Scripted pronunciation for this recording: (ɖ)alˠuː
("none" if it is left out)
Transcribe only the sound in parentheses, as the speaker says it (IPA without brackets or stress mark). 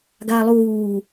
ɡ